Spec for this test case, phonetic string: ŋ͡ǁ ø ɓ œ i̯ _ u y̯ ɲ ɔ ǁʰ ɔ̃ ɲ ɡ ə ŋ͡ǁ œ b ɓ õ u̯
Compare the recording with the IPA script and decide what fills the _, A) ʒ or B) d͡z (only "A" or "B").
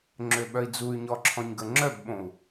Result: B